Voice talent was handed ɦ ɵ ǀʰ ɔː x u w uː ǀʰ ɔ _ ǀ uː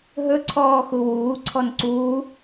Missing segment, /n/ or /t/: n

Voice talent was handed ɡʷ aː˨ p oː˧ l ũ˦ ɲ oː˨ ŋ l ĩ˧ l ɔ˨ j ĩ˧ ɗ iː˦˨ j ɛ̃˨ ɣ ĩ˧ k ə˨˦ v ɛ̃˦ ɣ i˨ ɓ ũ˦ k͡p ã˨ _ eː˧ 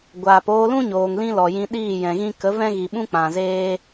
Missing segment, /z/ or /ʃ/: z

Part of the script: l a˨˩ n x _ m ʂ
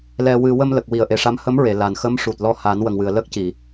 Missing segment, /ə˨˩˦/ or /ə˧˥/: ə˧˥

